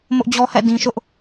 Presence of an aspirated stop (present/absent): absent